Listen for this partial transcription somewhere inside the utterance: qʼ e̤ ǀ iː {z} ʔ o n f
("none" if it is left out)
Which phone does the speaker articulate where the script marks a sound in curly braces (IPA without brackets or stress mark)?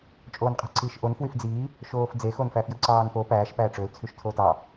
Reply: ʃ